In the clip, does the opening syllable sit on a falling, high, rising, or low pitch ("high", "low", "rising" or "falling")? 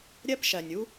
high